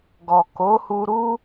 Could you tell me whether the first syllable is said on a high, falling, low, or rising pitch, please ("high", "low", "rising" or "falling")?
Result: low